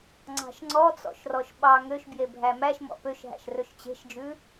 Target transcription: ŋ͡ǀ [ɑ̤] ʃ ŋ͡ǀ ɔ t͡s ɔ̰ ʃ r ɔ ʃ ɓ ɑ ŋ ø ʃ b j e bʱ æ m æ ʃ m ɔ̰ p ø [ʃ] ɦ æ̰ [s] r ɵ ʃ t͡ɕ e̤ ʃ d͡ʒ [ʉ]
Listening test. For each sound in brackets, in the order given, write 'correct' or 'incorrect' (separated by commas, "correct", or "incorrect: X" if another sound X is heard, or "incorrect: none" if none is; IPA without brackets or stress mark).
correct, correct, incorrect: ʃ, correct